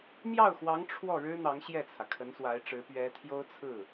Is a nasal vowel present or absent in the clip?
absent